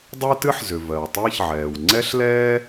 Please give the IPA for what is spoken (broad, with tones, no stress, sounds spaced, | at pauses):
dˤ ɜ˥ t ɨ˥ ħ z ʏ˩ v ɜ˩ w tˤ ɨː˥ ç ʕ ɛː˩ w ŋ͡ǀ ɛ˥ ɬ l ɛː˥